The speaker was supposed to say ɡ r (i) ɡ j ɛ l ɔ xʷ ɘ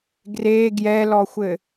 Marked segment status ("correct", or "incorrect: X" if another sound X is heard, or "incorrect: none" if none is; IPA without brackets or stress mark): incorrect: e